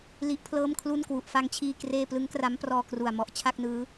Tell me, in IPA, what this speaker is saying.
l i˦˥ ʔ pʰ l ɤː˥˩ m kʰ l u˥˩ n k w u˨˩ ʔ f a˦˥ ŋ t͡ɕʰ iː˧ k r eː˥˩ p l ɯ˦˥ ŋ k r a˦˥ m p r ɔː˧ k r u˨˩ a̯ m ɔ˨˩ ʔ t͡ɕʰ a˥˩ k̚ n ɯː˦˥

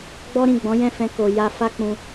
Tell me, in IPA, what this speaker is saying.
ɡ͡b ɔ˦ ɾ ĩ˦˨ ɡ͡b ɔ̃˨˦ j ɛ̃˦˨ f ɛ̃˧ k o˨ j a˧ f a˦ k͡p ũ˧

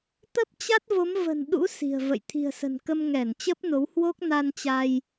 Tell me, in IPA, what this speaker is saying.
t̪ ə˦˥ p̚ t͡ɕ a˦˥ t̚ v o˨˦ m v ə̤˨˩ n ɗ ṵ˧˥ s i̤˨˩ ə̯ v ə̰˧˨ j t̪ʰ i̤˨˩ ə̯ s ə̤˨˩ n k ə˧ m ŋ ɛ˧˩ n t͡ɕ ə˦˥ p̚ n o˨˦ w h w o˦˥ k̚ n a˧ n t͡ɕ a˧ j

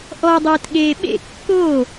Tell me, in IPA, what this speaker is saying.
ʔ ɔ dˤ ɪː t ɠ eː ɓ ḛ kː oː

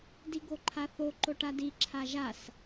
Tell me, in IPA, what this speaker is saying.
d i ɡ o ǃʰ a θ o ǃ o ʈ a d i ǁʰ a ʒ a s

